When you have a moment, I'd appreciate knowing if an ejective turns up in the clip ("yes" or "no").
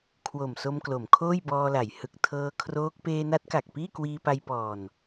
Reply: no